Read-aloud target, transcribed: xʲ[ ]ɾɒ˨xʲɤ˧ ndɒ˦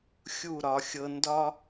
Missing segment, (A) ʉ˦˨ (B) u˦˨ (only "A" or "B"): B